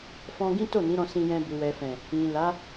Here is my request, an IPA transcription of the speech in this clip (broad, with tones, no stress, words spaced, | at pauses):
fɔ̃˧ɡĩ˦to˦˨ nĩ˨˦ɾɔ̃˧sĩ˧jɛ̃˧ bu˨wɛ˨fɛ̃˨ | ĩ˨la˨˦